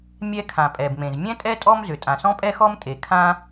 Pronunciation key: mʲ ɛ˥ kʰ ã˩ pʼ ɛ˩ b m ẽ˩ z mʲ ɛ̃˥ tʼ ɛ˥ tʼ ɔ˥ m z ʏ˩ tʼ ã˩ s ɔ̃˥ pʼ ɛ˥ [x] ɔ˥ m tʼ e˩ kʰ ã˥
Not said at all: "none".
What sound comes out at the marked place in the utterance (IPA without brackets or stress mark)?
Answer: x